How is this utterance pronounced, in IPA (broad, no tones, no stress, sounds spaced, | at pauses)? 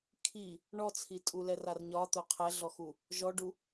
kʰ i | ɳ ɔ t͡sʰ i tʼ u l ɛ r a r ɲ ɒ t̪ o qʰ ɛ ɮ ɔ x u | ʒ ɔ ɖ u